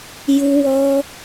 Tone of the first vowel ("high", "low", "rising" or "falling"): high